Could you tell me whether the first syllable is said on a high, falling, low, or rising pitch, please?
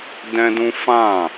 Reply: high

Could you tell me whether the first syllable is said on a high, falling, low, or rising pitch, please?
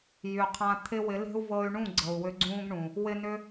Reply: low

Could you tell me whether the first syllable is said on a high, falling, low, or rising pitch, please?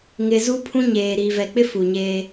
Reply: low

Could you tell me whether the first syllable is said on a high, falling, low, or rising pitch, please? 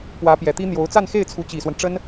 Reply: rising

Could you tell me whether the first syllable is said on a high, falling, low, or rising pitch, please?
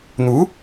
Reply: rising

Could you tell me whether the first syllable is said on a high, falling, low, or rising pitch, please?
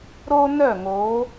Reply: high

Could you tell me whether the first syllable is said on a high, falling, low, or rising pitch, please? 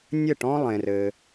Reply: falling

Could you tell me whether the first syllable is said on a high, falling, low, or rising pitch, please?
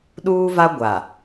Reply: high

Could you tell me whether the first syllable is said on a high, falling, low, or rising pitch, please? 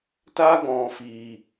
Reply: high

